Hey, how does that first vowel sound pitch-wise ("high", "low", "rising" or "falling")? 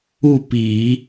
falling